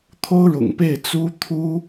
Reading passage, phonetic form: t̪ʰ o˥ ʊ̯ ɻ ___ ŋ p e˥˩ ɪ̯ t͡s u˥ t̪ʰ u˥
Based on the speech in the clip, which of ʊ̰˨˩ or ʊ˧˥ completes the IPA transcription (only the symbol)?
ʊ̰˨˩